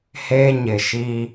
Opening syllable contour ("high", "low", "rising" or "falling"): high